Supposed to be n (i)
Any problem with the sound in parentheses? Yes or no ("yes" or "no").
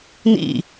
yes